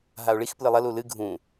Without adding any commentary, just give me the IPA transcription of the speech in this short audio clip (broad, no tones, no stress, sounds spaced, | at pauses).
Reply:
ɦ a o̯ ɭ i x p l ɨ lˠ ɐ l u l ɨ ɡʱ ũ